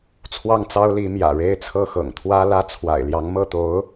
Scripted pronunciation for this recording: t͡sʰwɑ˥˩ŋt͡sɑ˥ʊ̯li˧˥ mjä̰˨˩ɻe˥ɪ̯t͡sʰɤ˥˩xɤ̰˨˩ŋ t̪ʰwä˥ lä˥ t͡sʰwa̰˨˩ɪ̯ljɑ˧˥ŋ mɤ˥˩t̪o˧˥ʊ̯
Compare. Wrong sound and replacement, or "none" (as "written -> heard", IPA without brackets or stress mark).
none